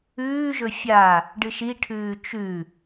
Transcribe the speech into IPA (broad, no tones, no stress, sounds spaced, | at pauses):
ʉː ʒ ɵ fʲ a | ɖ ɨ ʃ i ʈʰ ʉː t͡ʃ ʉ